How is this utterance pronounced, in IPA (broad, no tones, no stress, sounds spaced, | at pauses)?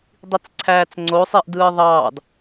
dˤ i t͡s ǀʰ æː t͡s ŋ͡ǀ o sˤ iː ʔ d ɯː ðˤ ɑː d